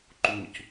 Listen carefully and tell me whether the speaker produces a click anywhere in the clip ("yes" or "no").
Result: yes